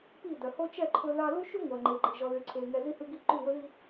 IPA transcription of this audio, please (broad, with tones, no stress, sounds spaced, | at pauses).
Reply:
p i˦˨ d œ˨ h o˦ t͡ʃ ɛ˦˨ ǃʰ ɵ˦ ð ɑ˦ l u˦ ʃ y˦ ŋʷ œ˨ ŋ͡ǃ e˨ ɡ͡ǃ i˨ ʒ ɔ˨ ð y˨ ǀʰ e˨ ŋ ɛ˨ z i˦ h ʉ˦ ɡ i˦ ǃ y˦˨ w ɵ˦ ð i˦